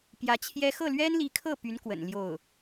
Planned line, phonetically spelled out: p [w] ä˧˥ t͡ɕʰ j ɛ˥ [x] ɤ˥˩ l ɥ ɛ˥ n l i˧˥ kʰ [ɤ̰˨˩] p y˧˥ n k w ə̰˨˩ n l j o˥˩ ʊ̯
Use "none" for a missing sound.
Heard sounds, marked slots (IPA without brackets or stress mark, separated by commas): j, x, ɤ˥˩